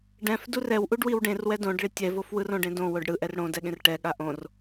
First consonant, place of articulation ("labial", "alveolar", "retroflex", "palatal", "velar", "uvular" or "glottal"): retroflex